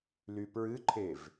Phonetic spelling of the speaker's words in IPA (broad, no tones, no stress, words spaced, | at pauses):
lypɹɨǃʰev